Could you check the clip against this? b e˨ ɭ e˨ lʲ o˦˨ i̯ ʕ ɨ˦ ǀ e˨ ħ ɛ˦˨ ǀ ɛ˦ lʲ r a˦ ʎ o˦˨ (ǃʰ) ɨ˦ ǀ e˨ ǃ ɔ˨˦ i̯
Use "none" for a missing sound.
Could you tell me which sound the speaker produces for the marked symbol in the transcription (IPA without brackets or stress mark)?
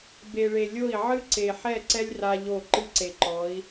ǃ